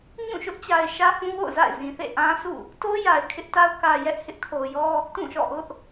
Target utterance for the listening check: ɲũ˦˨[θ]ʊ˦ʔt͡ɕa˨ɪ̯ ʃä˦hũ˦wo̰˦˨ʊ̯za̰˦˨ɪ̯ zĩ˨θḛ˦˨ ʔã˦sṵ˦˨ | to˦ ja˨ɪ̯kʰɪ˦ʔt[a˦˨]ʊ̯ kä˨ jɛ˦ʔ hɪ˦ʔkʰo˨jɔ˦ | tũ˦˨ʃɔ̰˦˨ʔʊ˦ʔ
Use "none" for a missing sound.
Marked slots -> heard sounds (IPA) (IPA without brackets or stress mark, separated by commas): ʃ, a˦